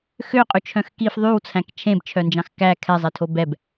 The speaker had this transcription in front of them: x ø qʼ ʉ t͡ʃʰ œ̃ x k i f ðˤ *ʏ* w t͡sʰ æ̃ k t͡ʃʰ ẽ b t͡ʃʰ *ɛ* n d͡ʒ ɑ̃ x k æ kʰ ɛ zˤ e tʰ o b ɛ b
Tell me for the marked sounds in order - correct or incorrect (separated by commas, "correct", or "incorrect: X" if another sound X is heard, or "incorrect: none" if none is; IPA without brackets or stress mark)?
incorrect: y, incorrect: œ